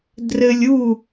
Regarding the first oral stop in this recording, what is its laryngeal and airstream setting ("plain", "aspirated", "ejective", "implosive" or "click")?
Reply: plain